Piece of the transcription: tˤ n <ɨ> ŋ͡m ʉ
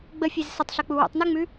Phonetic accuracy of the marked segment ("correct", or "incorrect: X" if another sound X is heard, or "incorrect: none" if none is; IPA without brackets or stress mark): incorrect: y